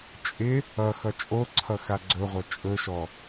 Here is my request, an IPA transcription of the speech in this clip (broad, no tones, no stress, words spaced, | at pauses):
t͡ʃʼɪ | ʌxʌ t͡ʃʼoǀʰʌ xaɡ͡ǀɵʁʷʌ t͡ʃʼɵʃɔ